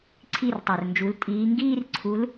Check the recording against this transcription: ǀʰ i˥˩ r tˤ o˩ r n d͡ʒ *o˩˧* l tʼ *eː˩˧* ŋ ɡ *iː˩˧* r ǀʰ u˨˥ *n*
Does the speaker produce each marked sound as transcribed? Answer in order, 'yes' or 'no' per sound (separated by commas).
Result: no, no, no, no